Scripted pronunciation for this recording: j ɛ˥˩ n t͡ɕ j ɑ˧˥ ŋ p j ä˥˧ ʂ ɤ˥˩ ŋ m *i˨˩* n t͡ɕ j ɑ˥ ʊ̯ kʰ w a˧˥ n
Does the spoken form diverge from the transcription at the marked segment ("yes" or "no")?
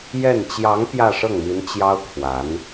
yes